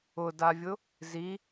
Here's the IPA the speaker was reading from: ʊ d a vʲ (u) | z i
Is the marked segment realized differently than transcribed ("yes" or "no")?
yes